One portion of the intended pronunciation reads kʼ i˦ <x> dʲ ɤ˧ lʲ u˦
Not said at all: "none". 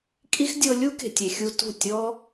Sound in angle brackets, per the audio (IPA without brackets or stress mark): x